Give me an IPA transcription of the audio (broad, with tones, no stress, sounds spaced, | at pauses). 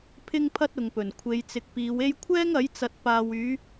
pʰ ɪ˥ ŋ pʰ ɐ˥ t̚ ʊ˨ ŋ p ɵ˨˩ n kʷʰ e˨˧ j t͡s ɪ˨˥ k̚ p iː˨˧ w e˥ j kʷʰ ɛː˥ ŋ ɐ˨˥ j t͡s ɐ˨ t̚ p aː˨ w yː˨˧